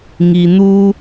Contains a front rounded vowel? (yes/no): no